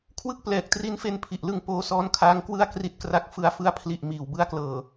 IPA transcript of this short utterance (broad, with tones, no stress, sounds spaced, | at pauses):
kʰ w ɯ˥˩ k̚ p l ɛː˨˩ k̚ t r i˦˥ n f e˧ n pʰ i˨˩ ʔ l ɯ˧ ŋ p oː˧ s ɔː˦˥ n kʰ aː˦˥ ŋ k w ɯ˥˩ a̯ k r i˦˥ t̚ k r a˦˥ k̚ f ɯ˨˩ a̯ f ɯ˧ a̯ pʰ l i˨˩ ʔ m iː˨˩ w b ɯ˧ a̯ k l ɤː˨˩